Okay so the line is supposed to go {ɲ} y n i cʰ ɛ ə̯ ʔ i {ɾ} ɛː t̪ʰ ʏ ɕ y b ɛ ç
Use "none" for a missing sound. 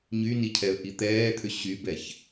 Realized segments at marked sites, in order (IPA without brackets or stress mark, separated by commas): ɲ, t̪